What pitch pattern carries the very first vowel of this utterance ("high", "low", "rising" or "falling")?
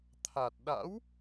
low